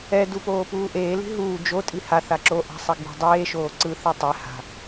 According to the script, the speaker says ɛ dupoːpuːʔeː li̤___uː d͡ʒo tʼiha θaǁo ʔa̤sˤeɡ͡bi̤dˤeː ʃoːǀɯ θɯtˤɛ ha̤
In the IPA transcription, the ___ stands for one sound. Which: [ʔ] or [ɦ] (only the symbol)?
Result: ɦ